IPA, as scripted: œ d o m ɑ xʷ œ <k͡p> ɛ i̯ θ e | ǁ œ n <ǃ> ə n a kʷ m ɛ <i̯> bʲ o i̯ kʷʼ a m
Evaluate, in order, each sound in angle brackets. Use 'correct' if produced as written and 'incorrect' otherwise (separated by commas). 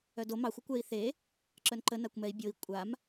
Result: incorrect, correct, correct